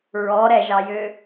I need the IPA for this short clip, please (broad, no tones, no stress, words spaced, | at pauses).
ɹɔ ɾɛʒɑjø